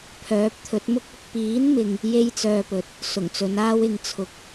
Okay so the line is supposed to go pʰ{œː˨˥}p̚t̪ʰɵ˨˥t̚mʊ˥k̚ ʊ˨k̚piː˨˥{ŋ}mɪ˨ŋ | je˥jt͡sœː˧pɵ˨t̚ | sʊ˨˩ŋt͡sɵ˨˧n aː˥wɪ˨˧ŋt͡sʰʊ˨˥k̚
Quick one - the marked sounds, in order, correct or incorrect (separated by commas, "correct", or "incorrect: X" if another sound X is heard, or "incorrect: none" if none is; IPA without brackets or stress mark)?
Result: correct, incorrect: n